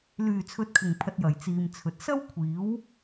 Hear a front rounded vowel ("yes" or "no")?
yes